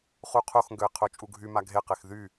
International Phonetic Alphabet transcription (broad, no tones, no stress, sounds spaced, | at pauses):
χ u qʰ o x ŋ ɡ ø ɪ̯ qʰ o t͡ʃʼ u ɡʱ y m a ɡʱ e q e x ð y